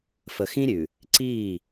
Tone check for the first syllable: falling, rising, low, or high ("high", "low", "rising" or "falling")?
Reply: low